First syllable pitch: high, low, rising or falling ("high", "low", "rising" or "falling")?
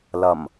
low